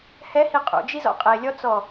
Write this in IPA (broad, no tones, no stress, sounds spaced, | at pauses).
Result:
h ɛ h i qʼ ṵ d͡ʒ i z ɔ̰ qʼ e lʲ ɔ t͡s ɔ